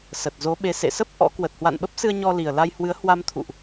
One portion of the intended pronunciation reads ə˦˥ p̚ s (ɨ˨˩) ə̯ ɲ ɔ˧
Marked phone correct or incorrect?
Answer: incorrect